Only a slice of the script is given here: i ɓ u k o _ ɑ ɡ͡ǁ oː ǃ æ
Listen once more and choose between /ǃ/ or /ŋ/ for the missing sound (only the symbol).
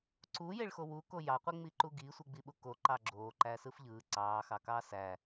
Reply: ǃ